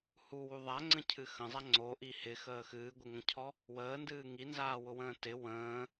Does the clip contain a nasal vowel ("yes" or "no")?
yes